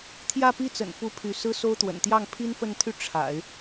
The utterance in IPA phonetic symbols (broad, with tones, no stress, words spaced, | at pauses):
t̪ʰjä˥˧pi˥˩t͡sə̰˨˩nfu˧˥ pʰy˧˥ sɹ̩˥so˥ʊ̯t̪wə̰˨˩n t̪jɑ˥˩ŋpʰi˥nfə˥˧nt̪ʰy˥˩ ʈ͡ʂʰa̰˨˩˦ɪ̯